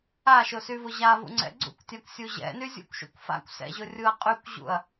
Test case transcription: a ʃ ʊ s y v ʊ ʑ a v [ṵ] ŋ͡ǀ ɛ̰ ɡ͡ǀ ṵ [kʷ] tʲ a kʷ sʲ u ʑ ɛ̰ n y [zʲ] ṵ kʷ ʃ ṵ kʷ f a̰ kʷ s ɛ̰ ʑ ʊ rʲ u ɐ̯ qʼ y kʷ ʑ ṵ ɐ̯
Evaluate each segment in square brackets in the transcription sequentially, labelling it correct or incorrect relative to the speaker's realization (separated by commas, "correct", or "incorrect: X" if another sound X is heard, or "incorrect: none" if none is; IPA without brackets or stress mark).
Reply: correct, correct, correct